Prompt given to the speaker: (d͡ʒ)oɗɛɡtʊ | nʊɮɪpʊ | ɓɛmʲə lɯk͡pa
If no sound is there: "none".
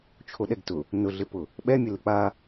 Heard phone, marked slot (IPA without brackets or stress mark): t͡ʃʰ